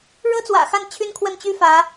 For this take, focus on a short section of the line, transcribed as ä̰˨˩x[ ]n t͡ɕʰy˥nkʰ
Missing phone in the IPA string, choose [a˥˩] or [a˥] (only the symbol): a˥˩